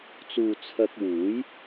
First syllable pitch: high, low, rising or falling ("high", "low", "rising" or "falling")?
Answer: low